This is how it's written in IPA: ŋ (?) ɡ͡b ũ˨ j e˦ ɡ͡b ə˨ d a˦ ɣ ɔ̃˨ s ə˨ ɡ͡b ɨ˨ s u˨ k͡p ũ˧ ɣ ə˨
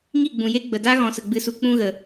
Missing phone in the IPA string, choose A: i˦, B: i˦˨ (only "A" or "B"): B